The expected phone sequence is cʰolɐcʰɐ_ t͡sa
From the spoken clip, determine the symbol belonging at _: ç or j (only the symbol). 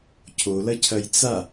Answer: j